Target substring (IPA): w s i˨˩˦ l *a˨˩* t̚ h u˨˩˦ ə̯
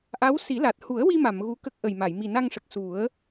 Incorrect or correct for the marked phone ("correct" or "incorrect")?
correct